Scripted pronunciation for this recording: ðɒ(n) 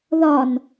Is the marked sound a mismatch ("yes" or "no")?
no